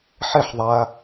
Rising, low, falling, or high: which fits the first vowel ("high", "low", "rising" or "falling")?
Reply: falling